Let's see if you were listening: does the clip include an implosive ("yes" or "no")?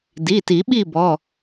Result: yes